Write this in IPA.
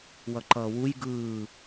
w ʌ ǃ ʌː w u j ɡ ɯː

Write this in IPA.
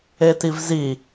e t i v z i

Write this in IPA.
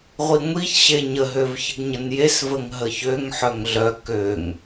ʁʷ i ŋʷ i ç ɕ e ɲ ə ɦ ø v ç ə ɡ ɲ ə n j e s v ə ŋ ɦ ə ç ø ŋ ħ œ ŋ ɮ œ k ø ŋ

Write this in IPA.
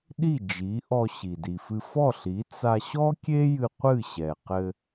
ɗ i˥˩ d͡ʒ i˩˥ ʔ ɔ˧ ɕ i˩ d i˩ f ɨ˧ f ɔ˥˩ ɬ i˩˥ t͡s a˧ ɕ ɔ˥ kʲ e˥ j ɨ˧ qʷ ɨ˥˩ ɕ ɛ˩ q ɘ˧

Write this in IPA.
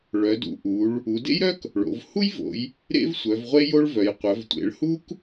ɭ œ˩˧ d ṵ˩˧ ʔ u˩˧ ɭ | u˩˧ d ḛ˥ j ɾ œ˥ k | ɭ o̰˩˧ v h u˥ j v o̰˩˧ j | ɾ ḛ˥ v sʷ œ˩˧ v ʁʷ e˥ j o˥ ɭ v œ˩˧ j qʷ œ˩˧ v tʷ ḛ˩˧ ɭ h u˥ k

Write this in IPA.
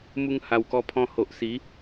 m u˧ ŋ h a˨˩ w k ɔ˧ pʰ ɔ̃˧ h o˨ ʔ s i˨˦

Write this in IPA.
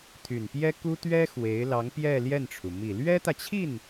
t̪ʰ y˨˩ n p j ɛ˥ k u˥ t̪ ɥ ɛ˥ x w e˧˥ ɪ̯ l ɑ˧˥ ŋ p j ɛ˥˧ l j ɛ˥˩ n ʈ͡ʂʰ u˩ m i˨˩ l ɥ ɛ˥ t̪ ä˨ t͡ɕʰ i˥˩ n

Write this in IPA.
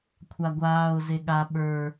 kʷʰ a ɡʷ aː ʊ̯ z e ɠ a ɓ ə˞

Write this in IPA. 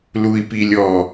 l u˨ i̯ p i˨ lʲ ɔ˨

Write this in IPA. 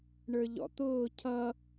ɳ ə˞ ʎ ɔ̰ t̪ ʊː cʰ ʌ

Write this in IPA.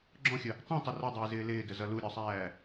ɡ͡ǁ ɔ̃ xʲ ə | tˤ ĩ tˤ ə r ʌ dˤ ɪː z ɪː l ɪː d ə z ʌ l u ɾʲ ɒ sˤ æː

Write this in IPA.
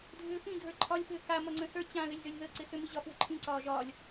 dʱ ʏː f ĩ ɡʱ ə˞ ǃʰ ɒ lʲ f ʏː k a m ɒ ŋ͡ǀ ə̃ s ə˞ t͡ɕ ã ð ɪ lʲ z ʏ lʲ ð ə ǀ ɪ s ʏ m i ʑ ɒ f w ʏ ǃʰ ĩ ǀ ɒː ʒ ɒː lʲ

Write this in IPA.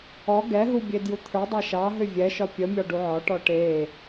ɔ ɡ ɛ ɦ u bʲ e d j u t̪ʰ ə˞ dˤ a ʃ ɑ ɦ ʏ vʲ ɛ ʃ ɒ pʲ ə mʲ ɒ ɖ u ʕ ɒ ʈ ɔ ʈ e

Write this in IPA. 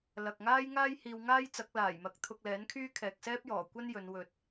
l ɐ˨ k̚ ŋ aː˥ j ŋ aː˥ j h iː˧ w ŋ aː˥ j t͡s ɐ˨˥ k̚ l aː˨˩ j m ɐ˨˥ k̚ t̪ʰ ʊ˧ k̚ l ɛː˨˥ n kʰ yː˥ kʰ ɛː˨ k̚ s ɛː˥ p̚ j ɔː˨˩ kʷ ɐ˥ n j ɵ˨˧ n w ɵ˨ t̚

